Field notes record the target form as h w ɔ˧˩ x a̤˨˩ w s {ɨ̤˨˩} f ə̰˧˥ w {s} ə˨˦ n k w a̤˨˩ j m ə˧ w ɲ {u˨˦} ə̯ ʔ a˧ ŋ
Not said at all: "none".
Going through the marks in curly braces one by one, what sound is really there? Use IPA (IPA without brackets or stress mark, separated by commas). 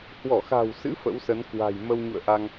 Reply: ɨ̰˧˥, s, ṵ˧˨